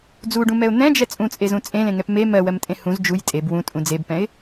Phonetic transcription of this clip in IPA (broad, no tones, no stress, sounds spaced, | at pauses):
d͡z u ɖ ũ m ɛ ʊ̯ n̪ ɛ̃ d͡ʒ ɛ t͡sʼ ũ t͡sʼ e z ũ t͡sʼ ẽ l ẽ ŋ ɛ p m e m ɜ w ɜ m tʼ ẽ h ũ z d͡ʒ u j tʼ e b w ũ tʼ ũ d͡z e b p ɛ̃ ɪ̯